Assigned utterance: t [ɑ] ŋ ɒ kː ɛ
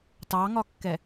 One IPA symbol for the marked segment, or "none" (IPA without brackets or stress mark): ɑ